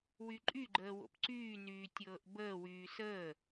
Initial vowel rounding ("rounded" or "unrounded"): rounded